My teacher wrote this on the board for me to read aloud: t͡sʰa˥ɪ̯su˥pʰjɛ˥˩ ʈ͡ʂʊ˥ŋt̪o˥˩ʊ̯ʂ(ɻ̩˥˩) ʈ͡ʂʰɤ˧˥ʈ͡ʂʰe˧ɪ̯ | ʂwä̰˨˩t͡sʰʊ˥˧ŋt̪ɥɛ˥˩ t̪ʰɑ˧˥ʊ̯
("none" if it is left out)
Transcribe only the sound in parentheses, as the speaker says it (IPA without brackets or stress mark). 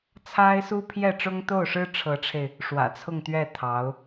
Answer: ɻ̩˥